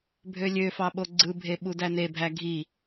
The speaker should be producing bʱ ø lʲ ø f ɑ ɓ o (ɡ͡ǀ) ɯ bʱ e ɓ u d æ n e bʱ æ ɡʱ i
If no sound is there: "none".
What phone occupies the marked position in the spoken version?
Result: ɡ͡ǀ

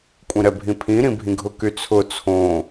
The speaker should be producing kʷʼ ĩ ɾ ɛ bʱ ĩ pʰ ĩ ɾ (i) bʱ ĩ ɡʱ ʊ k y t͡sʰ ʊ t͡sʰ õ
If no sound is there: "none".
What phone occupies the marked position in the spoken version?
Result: ĩ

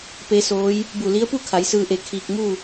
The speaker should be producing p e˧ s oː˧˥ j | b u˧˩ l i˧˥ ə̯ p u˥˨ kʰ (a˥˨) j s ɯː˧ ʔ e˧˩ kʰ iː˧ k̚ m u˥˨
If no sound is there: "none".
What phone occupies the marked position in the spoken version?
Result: a˩˧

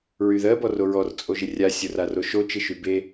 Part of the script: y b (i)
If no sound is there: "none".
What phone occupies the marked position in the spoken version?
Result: e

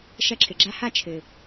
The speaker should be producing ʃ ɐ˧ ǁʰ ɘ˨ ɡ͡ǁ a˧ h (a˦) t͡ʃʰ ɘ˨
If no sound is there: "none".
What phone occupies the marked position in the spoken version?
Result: a˦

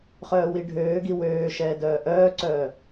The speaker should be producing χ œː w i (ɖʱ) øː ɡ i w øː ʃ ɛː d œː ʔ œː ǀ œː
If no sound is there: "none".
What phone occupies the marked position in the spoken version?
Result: ɖʱ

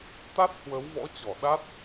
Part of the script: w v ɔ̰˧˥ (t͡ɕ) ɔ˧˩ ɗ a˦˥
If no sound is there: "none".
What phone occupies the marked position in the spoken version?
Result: t͡ɕ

